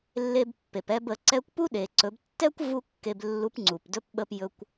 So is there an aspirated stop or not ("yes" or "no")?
no